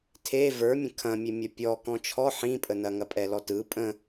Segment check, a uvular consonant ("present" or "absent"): absent